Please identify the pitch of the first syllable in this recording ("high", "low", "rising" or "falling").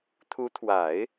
rising